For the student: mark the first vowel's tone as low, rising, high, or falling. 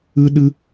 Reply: high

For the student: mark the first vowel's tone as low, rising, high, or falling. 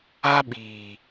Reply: high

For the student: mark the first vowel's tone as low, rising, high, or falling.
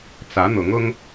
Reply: rising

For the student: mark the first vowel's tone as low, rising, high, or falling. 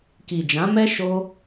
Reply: low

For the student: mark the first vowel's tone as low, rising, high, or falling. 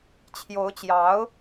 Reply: rising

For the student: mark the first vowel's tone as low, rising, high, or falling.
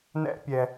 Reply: high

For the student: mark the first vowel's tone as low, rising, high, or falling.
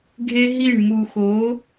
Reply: high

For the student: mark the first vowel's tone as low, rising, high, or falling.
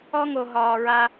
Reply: high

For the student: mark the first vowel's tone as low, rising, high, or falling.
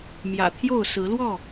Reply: low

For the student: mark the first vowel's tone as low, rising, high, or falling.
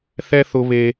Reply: high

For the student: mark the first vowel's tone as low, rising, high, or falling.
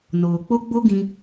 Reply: low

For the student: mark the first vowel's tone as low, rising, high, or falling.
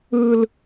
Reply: high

